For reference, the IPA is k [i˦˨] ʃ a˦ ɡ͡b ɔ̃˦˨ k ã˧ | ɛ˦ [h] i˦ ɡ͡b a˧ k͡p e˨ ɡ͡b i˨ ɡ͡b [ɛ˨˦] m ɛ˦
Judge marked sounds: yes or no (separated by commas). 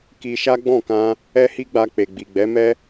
no, yes, yes